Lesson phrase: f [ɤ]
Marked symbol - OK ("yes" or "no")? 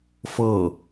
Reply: yes